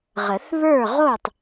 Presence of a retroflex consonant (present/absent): absent